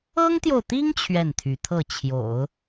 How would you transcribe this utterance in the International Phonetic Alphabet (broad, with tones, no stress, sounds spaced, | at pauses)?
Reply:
ɤ˥ ŋ t̪ j o˨ ʊ̯ t̪ i˥ ŋ t͡ɕʰ ɥ ɛ˥˩ n t̪ʰ y˧˥ t̪ʰ ɤ˥˩ t͡ɕʰ j o̰˨˩˦ ʊ̯